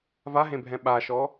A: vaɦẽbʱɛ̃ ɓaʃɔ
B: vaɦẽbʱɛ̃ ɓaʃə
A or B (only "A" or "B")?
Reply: A